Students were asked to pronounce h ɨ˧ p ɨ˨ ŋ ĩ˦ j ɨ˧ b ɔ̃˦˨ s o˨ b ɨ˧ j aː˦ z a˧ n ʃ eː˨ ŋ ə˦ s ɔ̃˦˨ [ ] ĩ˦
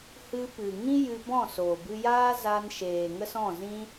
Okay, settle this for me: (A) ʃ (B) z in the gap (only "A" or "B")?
B